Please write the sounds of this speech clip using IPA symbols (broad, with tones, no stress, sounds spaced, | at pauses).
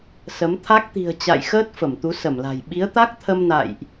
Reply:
s ə˨˦ m t̪ʰ a˦˥ k̚ t̪ i̤˨˩ ə̯ t͡ɕ a̰˧˨ j x əː˦˥ t̚ f ə˧˩ m t̪ u˨˦ s ə˧˩ m l a̤˨˩ j ɓ i˨˦ ə̯ t̪ a˦˥ k̚ t̪ʰ ə˧ m n a̰˧˨ j ʔ